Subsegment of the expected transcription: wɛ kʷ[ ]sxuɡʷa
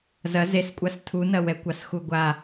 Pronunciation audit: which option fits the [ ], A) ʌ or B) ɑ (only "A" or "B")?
B